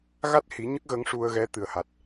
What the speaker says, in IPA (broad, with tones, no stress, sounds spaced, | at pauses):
ɣ a˦˥ t̚ h i˨˩˦ ɲ ə˦˥ k̚ ɣ ə˧˥ ŋ ʂ u˧ ə̯ ɣ ɛ˧˥ t̪ ɨ˨˩ ə̯ h a˨˩ t̚